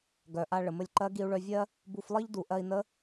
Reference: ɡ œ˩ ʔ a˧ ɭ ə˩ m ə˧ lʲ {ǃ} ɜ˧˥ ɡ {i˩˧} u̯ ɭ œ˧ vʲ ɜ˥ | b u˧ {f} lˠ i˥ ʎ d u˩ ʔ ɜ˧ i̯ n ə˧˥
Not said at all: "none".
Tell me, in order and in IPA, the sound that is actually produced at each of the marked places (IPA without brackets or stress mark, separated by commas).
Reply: ǃ, i˧, f